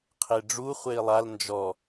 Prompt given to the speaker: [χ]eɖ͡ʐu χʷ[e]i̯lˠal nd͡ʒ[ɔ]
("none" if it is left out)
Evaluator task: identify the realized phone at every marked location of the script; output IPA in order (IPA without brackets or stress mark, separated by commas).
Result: qʰ, e, ɔ